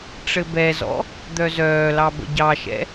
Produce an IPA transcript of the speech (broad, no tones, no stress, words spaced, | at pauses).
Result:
ʈ͡ʂɘbɛzɔ̰ | d̪œzœːlɑ bə̰ɟɑʃɛ̰